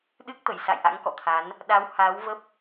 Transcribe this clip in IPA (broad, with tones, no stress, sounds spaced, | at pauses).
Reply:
ɗ ɨ˦˥ k̚ t̪ ə˧˩ j s a̰˧˨ j ʔ a̰˧˥ ŋ k ɔ̰˧˨ t̪ʰ a˨˦ n | ɗ a˨˦ w h aː˨˦ w v ə˦˥ p̚